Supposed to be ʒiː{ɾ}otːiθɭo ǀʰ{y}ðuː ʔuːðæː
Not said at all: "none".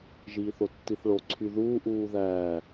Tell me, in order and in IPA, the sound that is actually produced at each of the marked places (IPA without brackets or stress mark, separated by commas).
θ, y